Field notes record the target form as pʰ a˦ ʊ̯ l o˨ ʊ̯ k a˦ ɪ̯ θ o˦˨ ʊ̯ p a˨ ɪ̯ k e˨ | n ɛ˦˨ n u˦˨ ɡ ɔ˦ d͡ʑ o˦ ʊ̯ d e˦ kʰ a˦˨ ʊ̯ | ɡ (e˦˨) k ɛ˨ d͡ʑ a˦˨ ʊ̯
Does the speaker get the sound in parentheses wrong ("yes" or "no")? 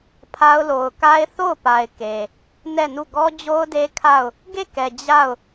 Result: no